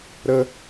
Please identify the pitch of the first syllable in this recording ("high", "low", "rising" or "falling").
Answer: high